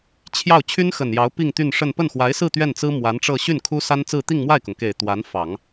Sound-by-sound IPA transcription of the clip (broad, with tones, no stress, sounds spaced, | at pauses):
t͡ɕʰ j ɑ˥˩ ʊ̯ t͡ɕʰ y˥ n x ə˨˩ n j ɑ˧˥ ʊ̯ p i˥˧ ŋ t̪ y˥˧ n ʂ ə˥˧ n p ə˥˩ n x w a˧˥ ɪ̯ s ɹ̩˥˧ t̪ ɥ ɛ˥˩ n t͡s ɹ̩˥ m w a˧˥ n ʈ͡ʂ ɤ˥˧ ɕ y˥˩ n kʰ u˥ s a˥ n t͡s ɹ̩˥˧ t̪ i˥˧ ŋ m w a˥˩ ɪ̯ k ʊ˩ ŋ k e˨˩ ɪ̯ t̪ w a˧˥ n f ɑ˨˩˦ ŋ